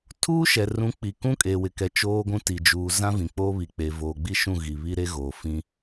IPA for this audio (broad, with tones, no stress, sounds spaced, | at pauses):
tʰ uː˦ ʃ ɛ˨ r ũ˨˦ k͡p i˨ k ũ˦ kʼ eː˨ w ɪ˨ k ɛ˨ t͡ʃ oː˦ ɡʷ ũ˦ t i˨ d͡ʒ uː˨ z ã˦ v ĩ˨ k͡p oː˦ β i˨ k͡p e˨ v oː˨ ɡ͡b i˦ ʃ ũ˦˨ ɣ i˨ β i˦ ɾ e˦ ɣ oː˨ f ĩ˦